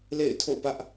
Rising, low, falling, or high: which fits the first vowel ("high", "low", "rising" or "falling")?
falling